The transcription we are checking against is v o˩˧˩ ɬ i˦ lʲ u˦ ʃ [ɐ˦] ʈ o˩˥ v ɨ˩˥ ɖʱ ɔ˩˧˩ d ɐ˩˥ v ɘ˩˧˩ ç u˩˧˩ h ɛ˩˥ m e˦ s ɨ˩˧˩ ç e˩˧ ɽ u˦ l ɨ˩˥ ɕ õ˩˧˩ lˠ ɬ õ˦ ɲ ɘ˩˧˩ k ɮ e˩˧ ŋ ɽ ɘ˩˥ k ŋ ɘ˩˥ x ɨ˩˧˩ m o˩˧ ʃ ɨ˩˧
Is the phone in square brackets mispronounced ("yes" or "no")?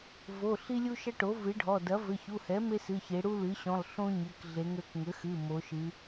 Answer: no